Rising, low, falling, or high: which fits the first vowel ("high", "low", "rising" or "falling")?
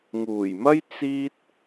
low